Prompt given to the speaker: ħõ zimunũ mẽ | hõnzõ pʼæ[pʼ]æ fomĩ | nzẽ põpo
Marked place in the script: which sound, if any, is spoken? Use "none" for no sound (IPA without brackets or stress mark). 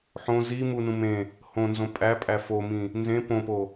pʼ